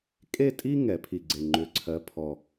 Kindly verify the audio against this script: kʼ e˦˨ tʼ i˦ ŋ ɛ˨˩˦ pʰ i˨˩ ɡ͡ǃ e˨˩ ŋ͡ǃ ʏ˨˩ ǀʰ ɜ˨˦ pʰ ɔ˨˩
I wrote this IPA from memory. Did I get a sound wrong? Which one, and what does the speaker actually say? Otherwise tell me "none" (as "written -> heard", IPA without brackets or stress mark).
ɡ͡ǃ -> ɡ͡ǀ